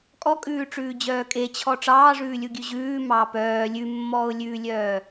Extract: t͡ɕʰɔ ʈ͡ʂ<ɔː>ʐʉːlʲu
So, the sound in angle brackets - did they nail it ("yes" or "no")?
no